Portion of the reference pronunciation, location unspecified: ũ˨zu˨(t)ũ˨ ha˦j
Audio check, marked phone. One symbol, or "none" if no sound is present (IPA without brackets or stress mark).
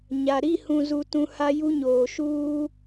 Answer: t